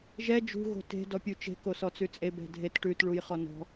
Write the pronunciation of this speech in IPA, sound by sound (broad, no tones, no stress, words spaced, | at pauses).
ʒɛ d͡ʒṳ ɣo̤te̤ dɔpʲut͡ʃe̤ kosɔt͡sʉt͡sʼe bɛ̤dʱet ʈʉt ɭujχɔnɔ̤